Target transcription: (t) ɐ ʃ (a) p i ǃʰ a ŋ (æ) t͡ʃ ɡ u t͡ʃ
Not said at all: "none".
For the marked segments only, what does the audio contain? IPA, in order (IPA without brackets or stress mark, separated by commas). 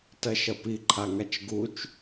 t, ɐ, a